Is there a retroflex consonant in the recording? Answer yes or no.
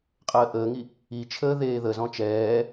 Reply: no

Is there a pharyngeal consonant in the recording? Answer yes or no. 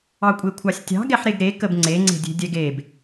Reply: yes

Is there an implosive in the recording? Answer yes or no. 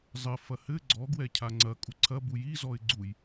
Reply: no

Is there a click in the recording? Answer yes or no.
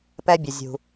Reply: no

